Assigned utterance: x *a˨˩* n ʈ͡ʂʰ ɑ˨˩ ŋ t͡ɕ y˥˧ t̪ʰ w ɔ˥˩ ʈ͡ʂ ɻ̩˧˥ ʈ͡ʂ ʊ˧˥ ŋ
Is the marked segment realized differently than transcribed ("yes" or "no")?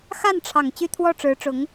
yes